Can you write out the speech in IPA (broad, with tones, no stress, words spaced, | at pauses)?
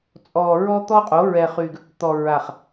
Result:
t͡sʼɔ˨ ɹɔ˦t̪ɔ˦qʼo˨˦ ɹɛ˨χy˨ɡ | t̪ɔ˨ ɹa˨χ